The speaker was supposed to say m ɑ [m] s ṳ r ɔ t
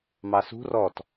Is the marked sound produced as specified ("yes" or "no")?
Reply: no